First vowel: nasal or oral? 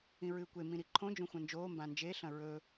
nasal